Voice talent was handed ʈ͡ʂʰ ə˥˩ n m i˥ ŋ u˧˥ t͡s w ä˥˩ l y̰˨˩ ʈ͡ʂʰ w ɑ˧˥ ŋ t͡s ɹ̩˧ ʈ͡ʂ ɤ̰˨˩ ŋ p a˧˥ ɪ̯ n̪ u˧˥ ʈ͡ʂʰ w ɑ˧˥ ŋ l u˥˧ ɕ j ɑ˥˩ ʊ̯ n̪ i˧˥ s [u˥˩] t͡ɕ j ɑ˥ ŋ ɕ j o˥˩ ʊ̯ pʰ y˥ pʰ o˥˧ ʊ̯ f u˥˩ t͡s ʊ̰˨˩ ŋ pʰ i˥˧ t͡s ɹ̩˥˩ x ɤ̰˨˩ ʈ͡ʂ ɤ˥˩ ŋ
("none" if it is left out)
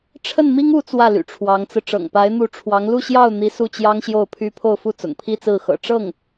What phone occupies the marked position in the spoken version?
u˥˩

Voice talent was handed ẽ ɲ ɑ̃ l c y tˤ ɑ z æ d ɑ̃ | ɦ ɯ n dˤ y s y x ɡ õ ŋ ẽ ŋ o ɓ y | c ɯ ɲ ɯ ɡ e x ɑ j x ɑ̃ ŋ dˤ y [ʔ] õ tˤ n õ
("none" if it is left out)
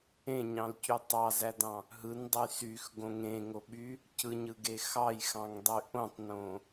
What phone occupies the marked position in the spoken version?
ʔ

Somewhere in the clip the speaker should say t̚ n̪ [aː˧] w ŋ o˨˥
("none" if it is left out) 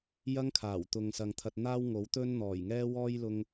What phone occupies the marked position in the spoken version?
aː˥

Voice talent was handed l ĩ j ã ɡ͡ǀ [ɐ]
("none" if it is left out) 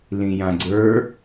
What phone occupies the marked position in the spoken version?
ə˞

